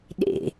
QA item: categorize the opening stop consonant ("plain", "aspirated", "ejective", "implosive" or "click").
implosive